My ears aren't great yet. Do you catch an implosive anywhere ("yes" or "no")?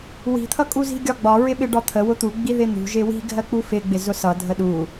yes